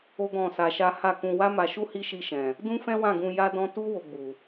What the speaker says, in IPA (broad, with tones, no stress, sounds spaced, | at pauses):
o˦ ɡ ɔ̃˦˨ s a˧ ʃ a˦ h a˦˨ k ũ˧ w a˦ m a˧ ʃ u˦ h i˦ ʃ i˧ ʃ ɛ̃˨ | d ũ˦ f ɛ̃˦ w ã˦˨ ɡ ũ˧ j a˦ d ɔ̃˦ t u˦ w o˧ ɡ͡b u˨